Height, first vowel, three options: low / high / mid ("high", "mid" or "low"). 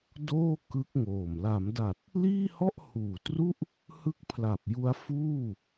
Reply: mid